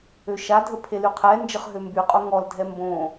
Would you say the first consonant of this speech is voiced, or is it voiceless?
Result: voiceless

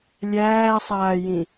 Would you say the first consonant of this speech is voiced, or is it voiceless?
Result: voiced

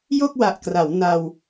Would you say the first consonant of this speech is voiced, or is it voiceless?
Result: voiced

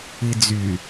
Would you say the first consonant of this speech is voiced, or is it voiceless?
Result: voiced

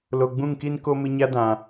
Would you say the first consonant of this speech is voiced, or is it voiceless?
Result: voiced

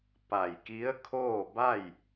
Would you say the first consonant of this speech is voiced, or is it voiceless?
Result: voiceless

